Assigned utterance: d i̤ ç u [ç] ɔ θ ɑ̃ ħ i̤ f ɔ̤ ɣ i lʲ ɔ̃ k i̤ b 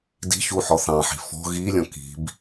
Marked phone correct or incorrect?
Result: incorrect